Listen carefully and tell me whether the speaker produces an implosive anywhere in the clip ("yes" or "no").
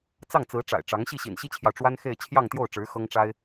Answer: no